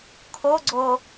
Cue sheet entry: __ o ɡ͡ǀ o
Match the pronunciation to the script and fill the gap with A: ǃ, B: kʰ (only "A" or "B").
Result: B